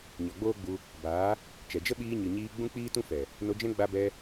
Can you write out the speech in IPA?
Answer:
ɲɔ˨ɡ͡boː˦ɡ͡bu˧ | baː˨˦ | t͡ʃɛ˨d͡ʒə˦ ɓiː˧ɲɨ˨ɲiː˧ ɡ͡bũ˦k͡piː˦tũ˦ fɛ˨ | no˧d͡ʒɛ̃˦ ɡ͡ba˧bɛ˧

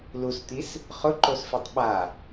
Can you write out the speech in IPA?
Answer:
lust̪is | χʊǃosfitˤ ɓa

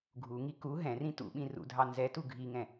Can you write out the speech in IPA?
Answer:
ɡʱuŋi ku ɦɛ̃rĩ tṵɓĩ rṵdʱɑ nzɛtu ɡʱiŋɛ̃

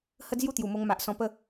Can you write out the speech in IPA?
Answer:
hə˦d͡zju˦t̪ju˨˩mo˧ŋ ma˨ʔsɔ̃˧ pə˧

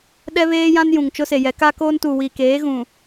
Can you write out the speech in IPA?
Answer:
ɗɛ˦βeː˦jã˦n jũ˨ŋt͡ʃʊ˦se˨jɛ˨˦ ka˦koː˦ntu˨ wi˨keː˨˦ ɣũ˨

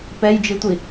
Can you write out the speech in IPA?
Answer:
pɛjd͡ʒitʷi

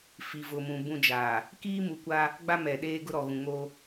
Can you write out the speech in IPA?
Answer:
fi˨vʊ˨mũ˨ bũ˦ d͡ʒaː˨ | kiː˦mu˨kʷa˦ | ɡ͡ba˦mɛ˨ɗeː˦ɡʊ˦ ɾɔ˨ɣũ˨ ŋo˦

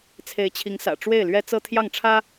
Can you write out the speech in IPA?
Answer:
t͡sʰe˧˥ɪ̯t͡ɕʰi˧˥ŋ sä̰˨˩ ʈ͡ʂwe˥˩ɪ̯lɥɛ˥ t͡sɤ˥t̪ʰjɑ˥˩ŋ ʈ͡ʂʰä˥

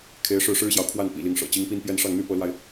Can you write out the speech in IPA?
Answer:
kʰe˧˥ɪ̯ ʂɻ̩˥˩ʂɻ̩˥ɕjɑ˨ʊ̯ kʰwa˥˩npḭ˨˩ li˧˥ŋʂɤ̰˨˩ t͡ɕi˧˥ŋpi˥n pjɛ˥˧n ʂɑ˥˩ŋn̪y˥ pɤ˧˥lwa˧ɪ̯

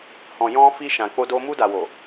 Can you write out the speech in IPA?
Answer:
hɔ̃˨ jɔ̃˧fi˧ ʃã˨k͡po˧do˧ mu˧da˨wo˨

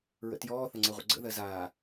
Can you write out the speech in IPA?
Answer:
ɹə̰tjɔː θəŋ͡ǀɜʁʷə̰ɡ͡ǀə̰ ðɜzaː

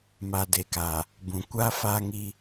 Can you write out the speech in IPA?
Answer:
ma˨de˨kaː˨ | bũ˨ kʷaː˦faː˦ŋiː˦

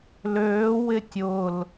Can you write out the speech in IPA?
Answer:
løːwɪ tʲʊl

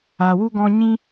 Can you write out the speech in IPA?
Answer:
a˧wu˦ɡɔ̃˦ ɲĩ˦

